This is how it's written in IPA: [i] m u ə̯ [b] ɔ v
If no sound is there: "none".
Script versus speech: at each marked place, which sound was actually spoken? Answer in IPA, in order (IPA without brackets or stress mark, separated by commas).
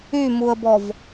y, b